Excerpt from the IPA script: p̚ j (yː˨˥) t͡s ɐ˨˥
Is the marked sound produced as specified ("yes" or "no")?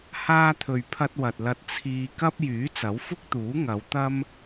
yes